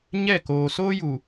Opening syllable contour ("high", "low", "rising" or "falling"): falling